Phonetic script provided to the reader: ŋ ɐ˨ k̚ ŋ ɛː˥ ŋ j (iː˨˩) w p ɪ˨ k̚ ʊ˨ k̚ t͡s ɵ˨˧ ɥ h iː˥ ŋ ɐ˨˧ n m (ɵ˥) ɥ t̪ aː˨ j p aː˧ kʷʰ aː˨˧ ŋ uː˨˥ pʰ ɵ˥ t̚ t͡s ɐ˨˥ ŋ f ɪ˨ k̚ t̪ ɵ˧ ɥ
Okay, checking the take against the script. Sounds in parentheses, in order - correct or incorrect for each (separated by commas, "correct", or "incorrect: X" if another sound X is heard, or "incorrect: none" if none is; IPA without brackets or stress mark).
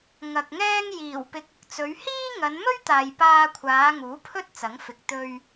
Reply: correct, correct